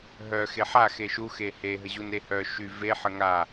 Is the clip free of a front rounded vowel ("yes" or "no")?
no